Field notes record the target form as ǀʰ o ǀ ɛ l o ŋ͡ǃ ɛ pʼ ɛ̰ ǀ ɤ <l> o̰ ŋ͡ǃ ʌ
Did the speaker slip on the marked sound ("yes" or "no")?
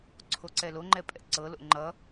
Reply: no